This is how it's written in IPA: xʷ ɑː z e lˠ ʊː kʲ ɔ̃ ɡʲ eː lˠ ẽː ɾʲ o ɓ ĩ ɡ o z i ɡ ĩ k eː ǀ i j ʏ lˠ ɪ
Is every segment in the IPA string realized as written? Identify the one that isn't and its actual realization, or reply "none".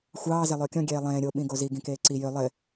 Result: none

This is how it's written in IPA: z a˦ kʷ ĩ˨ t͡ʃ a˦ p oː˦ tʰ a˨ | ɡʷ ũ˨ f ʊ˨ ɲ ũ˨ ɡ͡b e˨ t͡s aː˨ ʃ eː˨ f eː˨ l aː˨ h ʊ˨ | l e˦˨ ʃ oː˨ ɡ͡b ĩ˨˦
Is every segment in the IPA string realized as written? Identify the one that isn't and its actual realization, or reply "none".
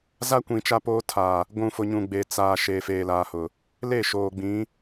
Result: none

